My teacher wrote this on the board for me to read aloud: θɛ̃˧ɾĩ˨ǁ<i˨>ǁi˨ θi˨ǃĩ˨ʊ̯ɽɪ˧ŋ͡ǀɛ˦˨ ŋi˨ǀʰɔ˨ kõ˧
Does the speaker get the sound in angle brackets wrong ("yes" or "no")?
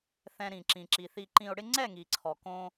yes